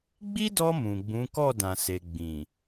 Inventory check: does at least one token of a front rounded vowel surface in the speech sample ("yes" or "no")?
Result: no